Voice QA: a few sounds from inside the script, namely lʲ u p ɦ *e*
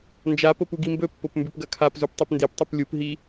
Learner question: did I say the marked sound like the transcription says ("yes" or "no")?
no